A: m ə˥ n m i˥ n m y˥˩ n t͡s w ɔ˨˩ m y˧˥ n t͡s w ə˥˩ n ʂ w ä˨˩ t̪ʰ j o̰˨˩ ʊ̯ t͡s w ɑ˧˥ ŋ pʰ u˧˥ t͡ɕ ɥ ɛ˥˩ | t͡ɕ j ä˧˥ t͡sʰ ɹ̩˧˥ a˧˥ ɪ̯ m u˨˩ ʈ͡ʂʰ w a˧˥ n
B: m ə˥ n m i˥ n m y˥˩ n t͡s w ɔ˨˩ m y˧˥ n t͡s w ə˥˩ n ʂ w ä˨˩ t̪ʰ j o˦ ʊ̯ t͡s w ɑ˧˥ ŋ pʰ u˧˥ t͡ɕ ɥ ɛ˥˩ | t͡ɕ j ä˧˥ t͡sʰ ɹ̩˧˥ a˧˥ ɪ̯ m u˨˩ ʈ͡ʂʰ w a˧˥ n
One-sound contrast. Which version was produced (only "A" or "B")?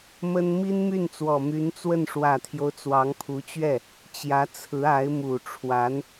B